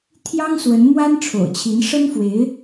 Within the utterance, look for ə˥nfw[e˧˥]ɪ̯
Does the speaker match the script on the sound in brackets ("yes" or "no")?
yes